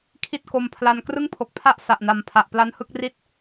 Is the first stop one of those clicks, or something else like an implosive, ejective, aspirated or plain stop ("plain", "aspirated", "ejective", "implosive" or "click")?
aspirated